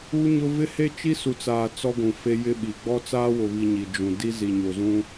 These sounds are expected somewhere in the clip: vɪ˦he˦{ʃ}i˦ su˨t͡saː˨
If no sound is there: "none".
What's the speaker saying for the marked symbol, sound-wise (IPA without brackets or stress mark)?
t͡ʃ